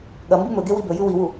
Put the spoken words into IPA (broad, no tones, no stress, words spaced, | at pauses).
ɠɐ mbɨmɵɡe wibɵjʉ wiwu